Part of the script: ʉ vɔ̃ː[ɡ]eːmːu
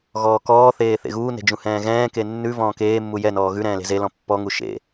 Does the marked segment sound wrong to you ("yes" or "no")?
yes